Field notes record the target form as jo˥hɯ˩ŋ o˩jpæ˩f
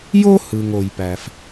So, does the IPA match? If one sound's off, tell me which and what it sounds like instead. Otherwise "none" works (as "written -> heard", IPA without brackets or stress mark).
none